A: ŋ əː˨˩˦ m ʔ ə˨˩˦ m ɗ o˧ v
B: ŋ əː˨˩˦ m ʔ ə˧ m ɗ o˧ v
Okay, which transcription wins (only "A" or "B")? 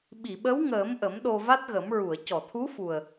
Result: A